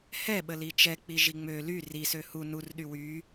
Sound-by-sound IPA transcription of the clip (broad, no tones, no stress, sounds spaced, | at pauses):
h ɛ ɓ ə l i t͡ʃ ɛ k͡p i ʒ i ŋ͡m ø l y r i s ø h u n u r ɗ y w y